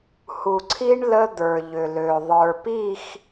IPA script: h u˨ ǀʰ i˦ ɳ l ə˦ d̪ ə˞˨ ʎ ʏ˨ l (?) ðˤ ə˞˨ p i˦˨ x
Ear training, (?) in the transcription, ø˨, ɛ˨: ø˨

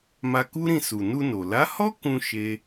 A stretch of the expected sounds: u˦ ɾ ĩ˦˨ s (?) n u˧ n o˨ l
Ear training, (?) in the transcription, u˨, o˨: u˨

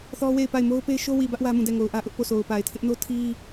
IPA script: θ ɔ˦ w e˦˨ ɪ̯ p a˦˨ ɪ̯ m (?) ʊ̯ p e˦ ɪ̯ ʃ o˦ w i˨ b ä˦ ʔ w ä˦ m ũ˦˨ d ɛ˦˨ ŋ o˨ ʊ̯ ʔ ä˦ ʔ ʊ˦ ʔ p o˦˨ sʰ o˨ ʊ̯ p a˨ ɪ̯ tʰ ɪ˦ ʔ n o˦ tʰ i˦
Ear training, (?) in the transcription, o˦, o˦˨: o˦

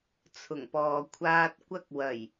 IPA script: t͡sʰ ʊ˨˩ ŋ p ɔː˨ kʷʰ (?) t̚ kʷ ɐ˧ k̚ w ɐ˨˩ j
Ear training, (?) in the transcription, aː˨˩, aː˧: aː˧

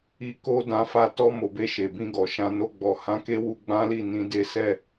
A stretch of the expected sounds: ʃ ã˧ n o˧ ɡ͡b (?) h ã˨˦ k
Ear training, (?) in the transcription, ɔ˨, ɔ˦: ɔ˨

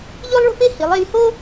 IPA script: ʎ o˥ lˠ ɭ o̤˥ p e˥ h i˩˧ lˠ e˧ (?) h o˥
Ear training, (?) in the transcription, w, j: j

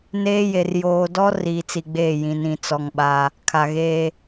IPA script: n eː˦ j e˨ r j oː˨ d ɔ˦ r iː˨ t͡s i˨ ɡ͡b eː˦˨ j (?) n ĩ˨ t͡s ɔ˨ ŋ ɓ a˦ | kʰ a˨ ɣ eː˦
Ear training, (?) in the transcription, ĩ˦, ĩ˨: ĩ˨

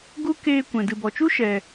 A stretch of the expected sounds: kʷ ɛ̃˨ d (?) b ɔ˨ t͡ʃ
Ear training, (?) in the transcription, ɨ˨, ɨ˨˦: ɨ˨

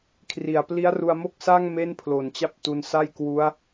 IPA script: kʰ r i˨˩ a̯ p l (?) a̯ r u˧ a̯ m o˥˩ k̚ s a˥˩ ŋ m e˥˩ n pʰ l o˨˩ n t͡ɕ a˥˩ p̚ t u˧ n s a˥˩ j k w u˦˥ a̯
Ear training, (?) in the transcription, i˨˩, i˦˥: i˦˥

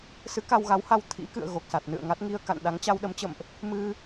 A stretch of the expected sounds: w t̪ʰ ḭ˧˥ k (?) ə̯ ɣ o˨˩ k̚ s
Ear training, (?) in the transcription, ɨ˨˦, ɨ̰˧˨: ɨ̰˧˨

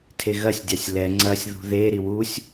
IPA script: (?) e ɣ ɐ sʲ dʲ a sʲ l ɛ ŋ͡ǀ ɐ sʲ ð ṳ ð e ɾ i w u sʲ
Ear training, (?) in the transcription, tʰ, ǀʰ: tʰ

